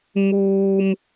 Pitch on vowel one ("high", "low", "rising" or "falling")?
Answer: high